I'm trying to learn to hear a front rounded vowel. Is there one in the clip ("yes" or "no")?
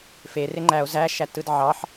no